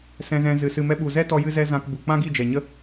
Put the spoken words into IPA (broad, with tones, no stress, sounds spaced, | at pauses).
s ɛ̃˧ z ɛ̃˧ z ɨ˨ s ɨ˨ m ɛ˧ ɓ u˨ z ɛ˦ t ɔ˧ j ɨ˧ z ɛ˦ z ã˧ k b u˨ k͡p ã˦ ɡ i˦˨ d͡ʒ ɛ˨ ɲ ə˦